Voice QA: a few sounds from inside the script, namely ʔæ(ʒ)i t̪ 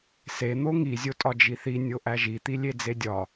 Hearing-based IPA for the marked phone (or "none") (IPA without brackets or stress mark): ʒ